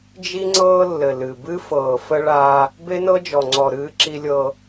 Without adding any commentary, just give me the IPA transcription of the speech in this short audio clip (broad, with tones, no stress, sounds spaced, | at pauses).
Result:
d͡ʒ i˦ ŋ͡ǀ ɤː˦ lː ɘ˨ l ɨ˨ b ɨ˦ f ɤː˨ f ə˦ ɭ aː˦ | b e˦ n ɤ˦ d͡ʒ ɔ˨ ŋ͡ǀ ɔ˨ ɾ ɨː˦ ǁ i˦ lʲ ɤː˦